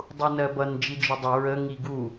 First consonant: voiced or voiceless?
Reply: voiced